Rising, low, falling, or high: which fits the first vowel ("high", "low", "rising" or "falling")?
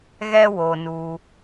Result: high